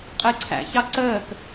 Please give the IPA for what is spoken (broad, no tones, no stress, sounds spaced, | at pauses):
qʼ ə e̯ ǀʰ æ̰ ç ɑ ǀ əː k